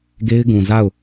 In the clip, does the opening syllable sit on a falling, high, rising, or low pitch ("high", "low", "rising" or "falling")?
high